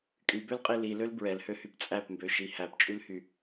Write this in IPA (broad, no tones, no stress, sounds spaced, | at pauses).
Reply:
kʼ y b ø l qʼ i l i l ø l b ɹ ɛ l h ø h y p t͡sʼ æ p m b ø ʃ i h æ p t͡ʃʼ y l h y